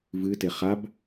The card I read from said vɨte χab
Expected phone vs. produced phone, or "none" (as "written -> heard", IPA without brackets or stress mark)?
none